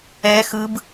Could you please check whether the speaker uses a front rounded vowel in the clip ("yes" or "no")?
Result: no